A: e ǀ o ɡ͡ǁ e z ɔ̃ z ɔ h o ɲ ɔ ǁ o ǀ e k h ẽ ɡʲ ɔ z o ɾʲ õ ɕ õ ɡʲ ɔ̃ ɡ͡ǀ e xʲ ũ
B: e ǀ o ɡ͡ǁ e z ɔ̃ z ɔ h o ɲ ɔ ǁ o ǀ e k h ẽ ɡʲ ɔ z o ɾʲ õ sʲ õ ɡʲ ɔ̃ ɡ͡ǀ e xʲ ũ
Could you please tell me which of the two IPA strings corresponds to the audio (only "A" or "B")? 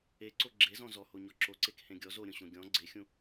A